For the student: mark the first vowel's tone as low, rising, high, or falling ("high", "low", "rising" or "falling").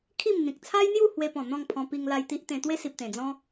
falling